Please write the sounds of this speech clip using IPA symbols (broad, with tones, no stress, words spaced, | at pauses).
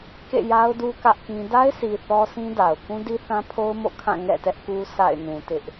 kḛ˦˨ja˦ʊ̯du˦ kä˦ʔkĩ˦ da˦ɪ̯si˨ θɔ˦sĩ˦ da˨ʊ̯ kũ˦di˦θã˦pʰo˦ʊ̯ mo̰˦˨kʰã˦˨ ŋɛ̰˦˨tɛ˦ʔ ku˦sʰa̰˦˨ɪ̯ nũ˨tɪ˦ʔ